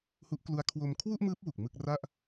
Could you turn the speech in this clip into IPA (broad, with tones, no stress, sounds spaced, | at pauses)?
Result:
h u˦˥ ʔ k l u˦˥ a̯ kʰ w o˧ m kʰ w u˥˩ ʔ m ɯː˦˥ p̚ w u˨˩ k̚ m ɯ˥˩ k̚ r a˥˩ ʔ